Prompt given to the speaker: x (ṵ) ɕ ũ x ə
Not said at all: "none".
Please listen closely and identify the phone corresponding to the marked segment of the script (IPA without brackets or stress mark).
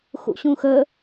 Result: ṵ